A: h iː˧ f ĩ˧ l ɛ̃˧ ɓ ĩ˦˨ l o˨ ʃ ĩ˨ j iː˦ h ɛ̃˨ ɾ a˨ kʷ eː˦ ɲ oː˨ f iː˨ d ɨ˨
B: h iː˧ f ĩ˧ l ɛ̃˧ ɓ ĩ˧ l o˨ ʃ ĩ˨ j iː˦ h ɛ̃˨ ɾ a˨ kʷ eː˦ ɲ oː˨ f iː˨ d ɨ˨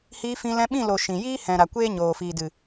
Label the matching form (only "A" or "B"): A